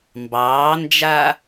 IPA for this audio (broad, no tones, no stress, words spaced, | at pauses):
mbɑːnd͡ʒa